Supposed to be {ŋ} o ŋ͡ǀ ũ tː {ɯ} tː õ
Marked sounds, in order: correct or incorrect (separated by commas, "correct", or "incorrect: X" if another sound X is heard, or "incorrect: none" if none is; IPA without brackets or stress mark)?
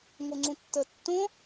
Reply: correct, incorrect: ə